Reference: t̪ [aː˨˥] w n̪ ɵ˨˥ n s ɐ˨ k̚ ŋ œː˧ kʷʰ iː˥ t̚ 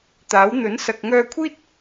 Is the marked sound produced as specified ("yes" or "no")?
yes